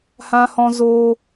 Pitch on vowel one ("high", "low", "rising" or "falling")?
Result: high